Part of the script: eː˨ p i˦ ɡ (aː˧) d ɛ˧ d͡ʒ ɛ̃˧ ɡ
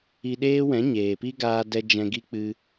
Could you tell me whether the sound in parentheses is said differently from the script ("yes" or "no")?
no